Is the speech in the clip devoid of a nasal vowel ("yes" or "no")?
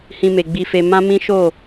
no